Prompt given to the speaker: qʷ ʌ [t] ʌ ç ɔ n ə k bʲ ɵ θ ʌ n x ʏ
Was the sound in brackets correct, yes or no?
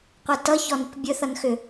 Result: yes